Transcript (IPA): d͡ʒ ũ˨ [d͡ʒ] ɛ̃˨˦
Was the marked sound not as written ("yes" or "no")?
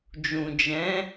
no